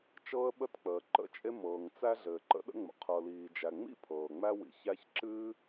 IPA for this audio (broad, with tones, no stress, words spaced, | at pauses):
t͡ʃɤː˥ə̯ɓə˥t k͡pəː˩ǃə̰˥t͡ʃʼe˥ mɤː˩ŋ t͡sæ˥ɮɘː˩ ǃə̰˥ɗə̰˥ŋ͡mə̰˩ qʰɤ˩liː˩d͡ʒæ˩ŋ͡mḭ˥ pʰɤː˩ŋ͡mæ˥ wḭ˩çæ˥ç ǁɨ˥